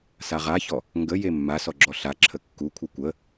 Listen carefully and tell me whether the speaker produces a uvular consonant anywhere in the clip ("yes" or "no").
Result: yes